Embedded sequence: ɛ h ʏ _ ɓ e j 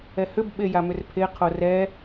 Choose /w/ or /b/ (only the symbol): b